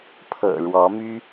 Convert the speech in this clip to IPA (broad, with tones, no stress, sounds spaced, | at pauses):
pʰ ɤ̰˨˩ ɻ w ɔ˧˥ m y˥